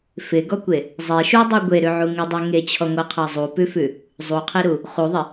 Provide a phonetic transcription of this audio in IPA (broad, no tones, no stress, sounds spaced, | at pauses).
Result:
f ɪ ɡ ɔ kʷ e | zˤ e ʃ u dˤ u ɡʷ e ɾ ʉ ʕ u ŋ ɪ dˤ ʉ ŋ e t͡ɕʰ ɔ ŋʷ ɤ qʰ ɤ zˤ u p ʉ f ʉ | zˤ u qʰ e ɾ u | χ u ðˤ ɪ